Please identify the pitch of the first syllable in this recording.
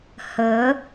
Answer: rising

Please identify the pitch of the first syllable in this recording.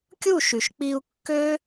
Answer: falling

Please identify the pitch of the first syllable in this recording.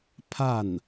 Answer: falling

